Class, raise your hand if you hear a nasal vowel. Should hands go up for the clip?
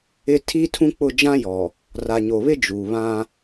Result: yes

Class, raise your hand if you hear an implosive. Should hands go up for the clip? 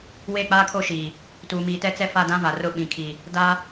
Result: yes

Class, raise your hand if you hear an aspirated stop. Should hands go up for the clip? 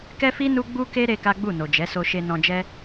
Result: no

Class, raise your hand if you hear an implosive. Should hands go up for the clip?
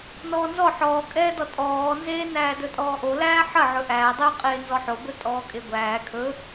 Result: no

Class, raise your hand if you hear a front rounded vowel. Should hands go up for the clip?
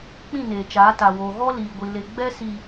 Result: no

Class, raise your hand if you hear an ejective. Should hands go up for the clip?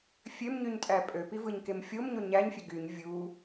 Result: yes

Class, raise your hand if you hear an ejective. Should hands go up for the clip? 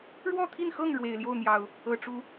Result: no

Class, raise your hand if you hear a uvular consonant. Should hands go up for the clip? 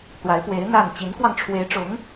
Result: no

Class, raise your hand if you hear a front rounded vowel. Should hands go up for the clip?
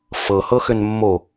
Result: yes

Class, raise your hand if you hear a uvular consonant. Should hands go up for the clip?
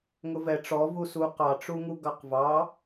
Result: yes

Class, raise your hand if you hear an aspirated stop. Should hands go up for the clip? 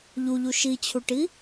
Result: yes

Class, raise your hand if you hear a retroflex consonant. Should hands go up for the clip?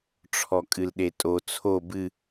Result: yes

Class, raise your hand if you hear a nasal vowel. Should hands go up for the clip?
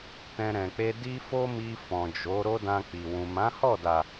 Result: yes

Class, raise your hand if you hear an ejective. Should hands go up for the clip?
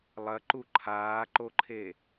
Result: no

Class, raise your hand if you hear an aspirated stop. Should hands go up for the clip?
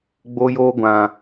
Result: no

